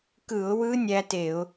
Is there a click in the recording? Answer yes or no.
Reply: no